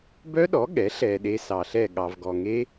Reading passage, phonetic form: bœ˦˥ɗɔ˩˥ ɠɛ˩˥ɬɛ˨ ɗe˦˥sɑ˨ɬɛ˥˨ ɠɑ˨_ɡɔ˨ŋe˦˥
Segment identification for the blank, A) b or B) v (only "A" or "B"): B